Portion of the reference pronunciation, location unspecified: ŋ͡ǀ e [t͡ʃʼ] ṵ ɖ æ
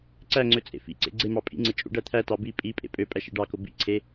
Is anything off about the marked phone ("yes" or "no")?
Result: no